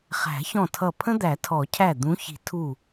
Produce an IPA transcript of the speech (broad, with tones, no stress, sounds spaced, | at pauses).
χ æ̤˨˩˦ ç ɔ̃˧˩ tʰ ʌ˧˩ pʰ ə̃˦ d̪ æ˨˩˦ tʰ ɔ˨˩˦ cʰ æ˧˩ d̪ ũ˨˦ ç i̤˨˩˦ tʰ u˧˩